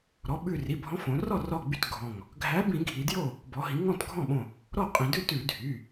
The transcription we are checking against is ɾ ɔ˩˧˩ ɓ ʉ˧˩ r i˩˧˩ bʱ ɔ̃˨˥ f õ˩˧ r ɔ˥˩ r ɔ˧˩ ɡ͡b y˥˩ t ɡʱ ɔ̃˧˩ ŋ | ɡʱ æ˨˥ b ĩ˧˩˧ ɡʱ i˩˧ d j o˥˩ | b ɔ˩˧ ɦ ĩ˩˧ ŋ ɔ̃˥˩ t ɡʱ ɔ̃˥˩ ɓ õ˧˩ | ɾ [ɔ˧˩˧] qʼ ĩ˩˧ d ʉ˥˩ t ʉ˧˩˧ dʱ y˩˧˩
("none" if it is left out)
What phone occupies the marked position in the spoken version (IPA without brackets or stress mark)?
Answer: ɔ˥˩